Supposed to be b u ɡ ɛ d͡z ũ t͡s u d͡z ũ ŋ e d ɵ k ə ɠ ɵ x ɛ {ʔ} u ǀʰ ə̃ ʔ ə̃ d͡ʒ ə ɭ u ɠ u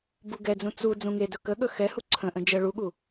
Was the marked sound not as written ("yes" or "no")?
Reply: yes